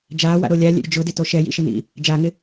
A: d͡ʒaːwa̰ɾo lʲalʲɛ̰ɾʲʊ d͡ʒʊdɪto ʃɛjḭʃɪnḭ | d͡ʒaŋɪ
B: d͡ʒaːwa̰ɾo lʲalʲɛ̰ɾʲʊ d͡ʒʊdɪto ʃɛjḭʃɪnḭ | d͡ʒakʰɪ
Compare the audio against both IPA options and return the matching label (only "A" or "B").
A